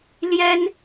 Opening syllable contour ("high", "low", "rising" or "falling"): high